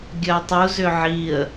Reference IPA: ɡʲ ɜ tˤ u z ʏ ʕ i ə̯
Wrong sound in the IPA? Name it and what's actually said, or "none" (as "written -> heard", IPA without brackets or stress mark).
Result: none